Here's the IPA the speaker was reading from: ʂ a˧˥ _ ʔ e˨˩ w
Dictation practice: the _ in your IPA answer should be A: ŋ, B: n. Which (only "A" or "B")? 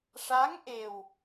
A